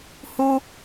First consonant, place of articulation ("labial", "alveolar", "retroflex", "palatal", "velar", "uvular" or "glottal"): glottal